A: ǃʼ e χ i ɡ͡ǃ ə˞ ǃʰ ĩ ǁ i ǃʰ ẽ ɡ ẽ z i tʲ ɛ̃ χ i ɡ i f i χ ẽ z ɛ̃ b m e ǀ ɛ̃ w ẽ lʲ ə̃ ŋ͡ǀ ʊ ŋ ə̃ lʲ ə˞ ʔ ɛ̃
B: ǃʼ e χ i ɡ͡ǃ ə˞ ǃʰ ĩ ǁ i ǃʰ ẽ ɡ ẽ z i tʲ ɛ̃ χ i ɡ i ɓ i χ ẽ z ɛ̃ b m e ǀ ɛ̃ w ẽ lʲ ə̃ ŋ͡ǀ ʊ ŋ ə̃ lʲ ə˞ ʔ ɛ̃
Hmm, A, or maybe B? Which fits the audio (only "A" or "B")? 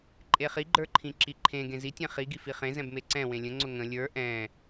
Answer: A